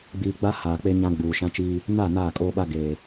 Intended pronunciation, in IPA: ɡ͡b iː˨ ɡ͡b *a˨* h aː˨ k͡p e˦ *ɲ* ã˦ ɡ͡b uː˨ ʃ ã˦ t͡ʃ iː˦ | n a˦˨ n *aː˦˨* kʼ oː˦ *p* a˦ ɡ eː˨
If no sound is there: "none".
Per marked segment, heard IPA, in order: a˦, ɲ, aː˦˨, ɓ

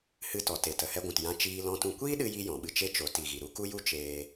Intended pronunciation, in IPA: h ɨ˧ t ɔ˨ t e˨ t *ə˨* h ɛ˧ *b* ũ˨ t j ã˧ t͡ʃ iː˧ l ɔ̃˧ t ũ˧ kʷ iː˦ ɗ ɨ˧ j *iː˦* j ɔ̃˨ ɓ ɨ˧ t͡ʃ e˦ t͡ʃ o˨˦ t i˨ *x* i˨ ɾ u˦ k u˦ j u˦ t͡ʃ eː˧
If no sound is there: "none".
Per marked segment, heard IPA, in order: ə˨, ɡʷ, i˦, ɣ

